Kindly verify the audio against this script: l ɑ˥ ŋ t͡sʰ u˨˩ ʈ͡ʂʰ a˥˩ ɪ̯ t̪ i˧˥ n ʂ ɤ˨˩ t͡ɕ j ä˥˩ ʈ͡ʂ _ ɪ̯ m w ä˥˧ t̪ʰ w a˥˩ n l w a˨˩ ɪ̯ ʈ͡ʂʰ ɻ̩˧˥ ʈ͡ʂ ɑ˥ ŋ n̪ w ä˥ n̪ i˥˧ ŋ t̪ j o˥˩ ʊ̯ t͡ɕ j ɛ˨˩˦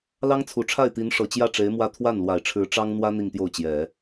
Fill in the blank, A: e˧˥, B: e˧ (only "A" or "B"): A